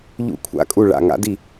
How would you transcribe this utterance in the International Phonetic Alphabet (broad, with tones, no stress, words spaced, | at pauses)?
ʎṵ˥˩kʷʰa̰˥˩kʼu˥˩ ɭa̰˥˩ ŋa̰˦˥di˥˩